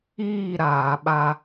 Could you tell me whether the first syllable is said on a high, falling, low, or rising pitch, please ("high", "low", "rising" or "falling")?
falling